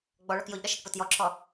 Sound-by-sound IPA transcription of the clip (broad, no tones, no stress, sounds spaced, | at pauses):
ɡ͡b ɔ ɭ ɔ k j o ʎ ɗ ʌ ʃ ɛ k p o t j ɔ ǁʰ ɔ